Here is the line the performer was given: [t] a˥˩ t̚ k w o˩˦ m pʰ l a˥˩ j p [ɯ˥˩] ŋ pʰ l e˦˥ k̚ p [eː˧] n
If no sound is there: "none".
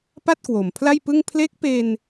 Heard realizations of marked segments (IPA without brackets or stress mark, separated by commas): p, ɯ˥˩, eː˧